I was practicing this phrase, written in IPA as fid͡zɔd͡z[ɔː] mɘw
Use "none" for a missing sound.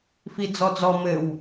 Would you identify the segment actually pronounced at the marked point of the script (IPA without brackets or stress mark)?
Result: ɔ